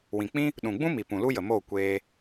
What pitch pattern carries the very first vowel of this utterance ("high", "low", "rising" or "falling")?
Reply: low